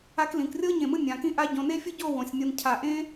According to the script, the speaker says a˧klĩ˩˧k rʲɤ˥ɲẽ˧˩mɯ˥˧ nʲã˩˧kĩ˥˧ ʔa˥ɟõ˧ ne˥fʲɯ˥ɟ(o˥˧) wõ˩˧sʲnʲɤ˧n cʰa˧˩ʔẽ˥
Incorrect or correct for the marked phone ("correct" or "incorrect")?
correct